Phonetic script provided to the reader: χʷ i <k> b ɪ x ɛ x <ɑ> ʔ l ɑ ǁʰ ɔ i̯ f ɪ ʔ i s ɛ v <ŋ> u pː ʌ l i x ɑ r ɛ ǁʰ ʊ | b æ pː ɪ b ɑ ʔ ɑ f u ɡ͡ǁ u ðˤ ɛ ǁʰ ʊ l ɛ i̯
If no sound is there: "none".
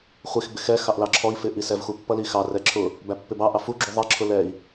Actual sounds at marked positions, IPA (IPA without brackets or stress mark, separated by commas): x, ɑ, x